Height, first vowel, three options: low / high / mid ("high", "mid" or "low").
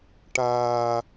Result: low